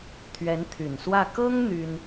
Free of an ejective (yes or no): yes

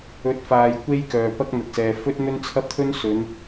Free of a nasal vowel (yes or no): yes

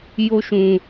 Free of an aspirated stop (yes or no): yes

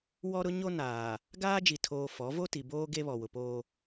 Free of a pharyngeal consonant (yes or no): yes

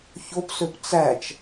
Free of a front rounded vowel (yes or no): no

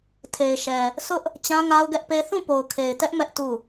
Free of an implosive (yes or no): yes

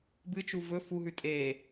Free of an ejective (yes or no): no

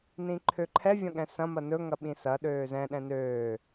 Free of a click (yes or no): no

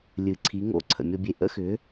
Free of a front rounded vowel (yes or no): no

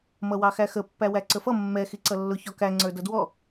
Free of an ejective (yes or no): yes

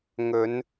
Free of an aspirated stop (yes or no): yes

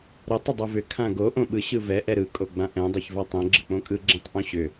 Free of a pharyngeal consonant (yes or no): yes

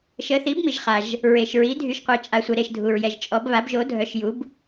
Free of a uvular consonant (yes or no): no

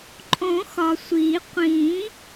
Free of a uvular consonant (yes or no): no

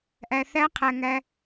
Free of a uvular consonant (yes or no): no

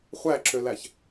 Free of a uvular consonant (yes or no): no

